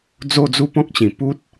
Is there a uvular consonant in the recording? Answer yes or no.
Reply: no